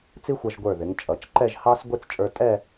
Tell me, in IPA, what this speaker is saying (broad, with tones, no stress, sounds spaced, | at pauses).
t͡s i˥ xʷ ʌ˧ ʒ ɡʷ ə˞˧˩ ð ɪ˩˧ ŋ t͡ʃʼ ʌ˩˧ t͡ʃ ǃ ɛ˥˧ ʒ h ɑ˥ s ɡʷ ɪ˥˧ t͡s t͡ʃʼ ə˞˧ tʼ ɛ˥˧